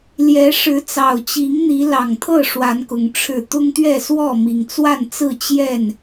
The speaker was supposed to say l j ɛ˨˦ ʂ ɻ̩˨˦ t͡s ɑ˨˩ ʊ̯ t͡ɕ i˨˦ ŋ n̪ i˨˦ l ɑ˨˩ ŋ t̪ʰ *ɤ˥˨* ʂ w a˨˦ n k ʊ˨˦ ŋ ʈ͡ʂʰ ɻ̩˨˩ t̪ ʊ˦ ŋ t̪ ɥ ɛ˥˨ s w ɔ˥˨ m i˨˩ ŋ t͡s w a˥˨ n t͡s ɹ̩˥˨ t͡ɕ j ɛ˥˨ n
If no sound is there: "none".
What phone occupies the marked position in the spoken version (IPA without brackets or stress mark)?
ɤ˥˨